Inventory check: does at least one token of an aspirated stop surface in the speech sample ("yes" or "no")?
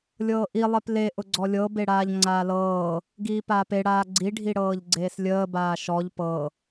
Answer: no